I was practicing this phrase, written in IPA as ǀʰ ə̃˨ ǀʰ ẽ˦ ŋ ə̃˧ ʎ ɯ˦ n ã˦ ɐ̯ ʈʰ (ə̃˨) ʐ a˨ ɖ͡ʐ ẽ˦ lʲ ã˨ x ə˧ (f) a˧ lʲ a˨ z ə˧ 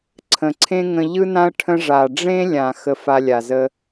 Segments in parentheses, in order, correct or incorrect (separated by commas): incorrect, correct